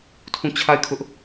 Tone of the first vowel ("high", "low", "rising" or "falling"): falling